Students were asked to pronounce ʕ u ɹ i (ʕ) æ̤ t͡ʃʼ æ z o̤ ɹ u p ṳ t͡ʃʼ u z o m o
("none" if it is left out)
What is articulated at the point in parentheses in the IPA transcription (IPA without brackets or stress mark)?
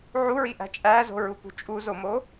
ʔ